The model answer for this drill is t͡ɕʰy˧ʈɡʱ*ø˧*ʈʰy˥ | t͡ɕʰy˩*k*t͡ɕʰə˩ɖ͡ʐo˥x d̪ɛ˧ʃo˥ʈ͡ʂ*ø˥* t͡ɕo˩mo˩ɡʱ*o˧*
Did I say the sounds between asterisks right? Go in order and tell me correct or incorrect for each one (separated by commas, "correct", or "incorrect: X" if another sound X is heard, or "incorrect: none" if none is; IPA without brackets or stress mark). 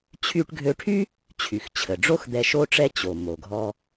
correct, incorrect: x, incorrect: ɛ˥, incorrect: ɔ˧